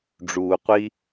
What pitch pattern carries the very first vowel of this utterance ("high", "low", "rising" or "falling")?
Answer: low